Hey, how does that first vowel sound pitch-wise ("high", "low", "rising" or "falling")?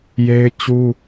high